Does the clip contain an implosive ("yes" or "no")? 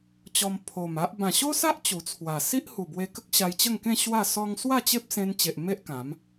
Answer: no